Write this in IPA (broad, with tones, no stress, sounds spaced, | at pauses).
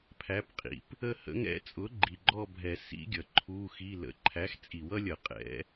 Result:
pʰ æ˨˥ p qʼ ḭ˩ p | ə˥˧ h ə̰˦˥ ŋ ɛ̰˦˥ t͡sʼ ʊ˨˥ ɡ͡ǃ i˩ ɡ͡ǃ ɔ˥˧ bʱ ɛ˨˩˦ s ḭ˦˥ ɡʲ ʌ˩ ǃʰ u˧˥˧ x i˧˥˧ l ə̰˨˥ ǃʰ æ˨˥ x t͡sʼ i˨˩˦ w ʌ˦˥ lʲ ʌ˨˩˦ qʼ ɛ̰˨˥